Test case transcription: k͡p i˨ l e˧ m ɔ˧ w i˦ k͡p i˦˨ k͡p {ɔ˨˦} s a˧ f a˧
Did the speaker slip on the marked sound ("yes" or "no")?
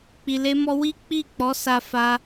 no